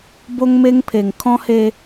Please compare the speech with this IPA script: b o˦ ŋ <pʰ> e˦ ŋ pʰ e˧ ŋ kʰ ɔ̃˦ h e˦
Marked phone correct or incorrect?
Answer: incorrect